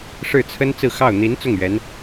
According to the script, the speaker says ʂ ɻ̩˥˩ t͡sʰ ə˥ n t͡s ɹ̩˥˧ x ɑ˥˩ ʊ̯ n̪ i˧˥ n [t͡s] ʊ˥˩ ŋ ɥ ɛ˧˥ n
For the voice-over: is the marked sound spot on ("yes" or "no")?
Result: yes